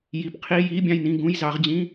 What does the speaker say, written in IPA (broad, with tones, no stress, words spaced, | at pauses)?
ji˨˩pqʰi˧˥˧ ji˧˥˧bʲɑ̃˥˨jnĩ˥˨ ɡũ˧˥˧jzɑ˨˦ʁ d͡ʑĩ˧˥˧